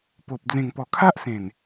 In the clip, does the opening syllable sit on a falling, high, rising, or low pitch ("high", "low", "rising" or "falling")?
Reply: low